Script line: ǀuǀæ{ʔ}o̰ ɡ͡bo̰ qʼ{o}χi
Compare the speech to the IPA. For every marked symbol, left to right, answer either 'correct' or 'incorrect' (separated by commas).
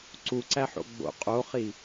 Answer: incorrect, correct